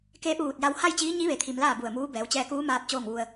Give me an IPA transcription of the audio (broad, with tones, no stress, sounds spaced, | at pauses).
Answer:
k eː˧˥ p̚ ʋ uː˧˩ t̚ j a˧ w h a˥˨ j t͡ɕ iː˧˥ ɲ i˧˥ ʋ e˩˧ t̪ʰ i˩ m l aː˥˨ b u˧˩ ə̯ m uː˧˥ b ɛː˩˧ w t͡ɕ ɛː˧ k uː˧˥ m aː˧ p̚ t͡ɕ oː˥˨ ŋ ʋ u˧ ə̯